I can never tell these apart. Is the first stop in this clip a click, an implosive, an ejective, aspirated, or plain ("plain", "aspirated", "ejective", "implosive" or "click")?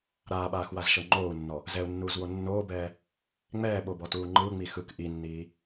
implosive